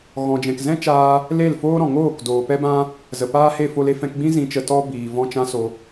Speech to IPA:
ɣɔ̃˨d͡ʒɛ̃˨kzɛ̃˦t͡ʃaː˧ | le˦˨lfoː˦ɾɔ̃˨ŋoː˦˨k doː˨pɛ˦bã˦ | zə˨ paː˦he˦˨fo˧le˧ fɛ̃˧kɡ͡bĩ˦ zĩ˨t͡ʃə˨tɔ˧ biː˨ vɔ̃˧t͡ʃã˧so˨

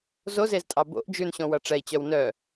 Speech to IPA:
zozeztʼɑ bo̰ʔ d͡ʒʉnɕõwʌ ʈ͡ʂɛi̯t͡ɕœw nœ

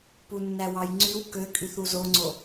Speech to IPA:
punːæwɑjŋ͡ǀyw køkʼyθ uzoŋ͡ǀo

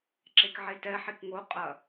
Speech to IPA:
ǁekʕetɛħik ŋo qʼɐ

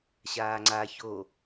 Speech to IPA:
ɕaːŋ͡ǀa ço

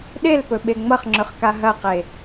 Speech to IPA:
ɗelpɵ ɓeŋ͡mʌχŋ͡ǁɵχka ɦɐqe

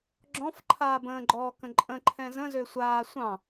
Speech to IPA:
ɡ͡ǁɔ̃f ǃʰaːbə̃ːɡ͡ǃɔːkə̃ ǃʼə̃ǃʰɛ̃ zə̃ zøsʷaː sʷɑ̃

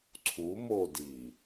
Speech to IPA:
ǀʰu modi

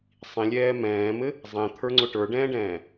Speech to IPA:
sˤĩlʲɛː mɛ̃ːmɘ | zˤẽt̪ʰə˞ŋ͡ǀʊ ʈə˞ɖɛ̃ːɖɛ̃ː

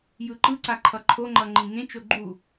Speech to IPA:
jɯǃɯǀa ǃʰʌǃʰoŋ͡ǃʌ ŋ͡ǃĩŋẽt͡ʃo ɡ͡ǃu

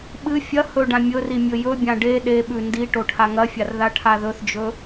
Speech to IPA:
ɓɨ fʲɐ hɵɖã mʲɵri mʲɵjɵbʲã ɖe ɗeɓʉ ndi ʈoʈʰaŋɐfʲar ðaʈʰaðɵθd͡ʒɵ

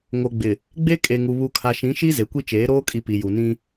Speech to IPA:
ŋo˨ɡ͡bɪ˨ | ɡ͡be˦ kʼe˨ŋu˨ βu˨kʰa˨ʃĩ˨˦ʃi˦ ze˨kʷi˦t͡ʃeː˨˦ ɾoː˦kʼi˨ pi˨ju˨ nĩ˦

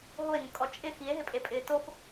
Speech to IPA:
ɦoe̯ŋʊkʼɔ t͡ʃʼɪ xie̯ɦɪpʼepʼɪː tof

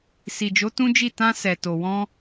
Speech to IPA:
si˨d͡ʒo˨˦ tũ˦d͡ʒi˦˨ tã˧sɛ˨ to˨wɔ̃˧

